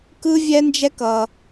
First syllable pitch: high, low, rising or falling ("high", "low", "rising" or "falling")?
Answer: high